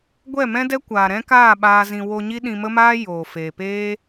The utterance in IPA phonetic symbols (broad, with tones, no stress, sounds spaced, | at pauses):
ɡʷ ɛ˦˨ m ɛ̃˦ d ɛ˦ kʷ aː˨ ɾ ɛ̃˦ k aː˦˨ ɓ aː˧ z ĩ˨ w o˧ ɲ i˦ ɗ ĩ˧ m ə˦ m aː˦ j oː˨ f eː˨ p eː˦